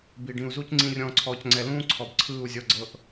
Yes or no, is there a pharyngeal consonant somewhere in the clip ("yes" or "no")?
no